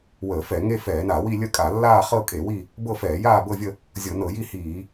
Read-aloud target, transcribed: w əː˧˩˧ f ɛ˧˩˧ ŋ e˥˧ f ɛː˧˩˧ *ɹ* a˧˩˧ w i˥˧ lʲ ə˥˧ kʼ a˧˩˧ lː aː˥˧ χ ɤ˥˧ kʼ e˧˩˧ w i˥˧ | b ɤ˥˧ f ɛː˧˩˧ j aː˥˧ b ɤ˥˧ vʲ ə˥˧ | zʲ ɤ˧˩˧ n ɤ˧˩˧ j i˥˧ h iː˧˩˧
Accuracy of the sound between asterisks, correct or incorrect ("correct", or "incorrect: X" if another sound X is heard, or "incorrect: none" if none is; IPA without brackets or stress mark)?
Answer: incorrect: n